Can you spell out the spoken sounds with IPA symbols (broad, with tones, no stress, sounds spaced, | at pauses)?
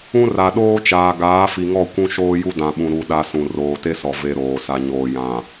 ũ˦ r a˨ ɗ oː˦ t͡ʃ aː˨ ɡ aː˨˦ f i˨ ŋ ɔ˦˨ kʷ ũ˦ ʃ oː˦ j u˦ d ã˨ ɓ ũ˨ ɾ u˨ ɗ a˦ s ũ˨ r oː˨ t e˦ s ɔ˨ v e˦ ɾ oː˨ s a˨ ɲ oː˨ j ã˨